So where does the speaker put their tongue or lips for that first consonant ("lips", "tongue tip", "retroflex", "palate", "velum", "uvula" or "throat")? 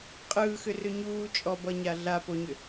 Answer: uvula